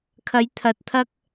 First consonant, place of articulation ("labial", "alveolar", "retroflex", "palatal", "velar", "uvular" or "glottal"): velar